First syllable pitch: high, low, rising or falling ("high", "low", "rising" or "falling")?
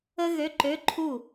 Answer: high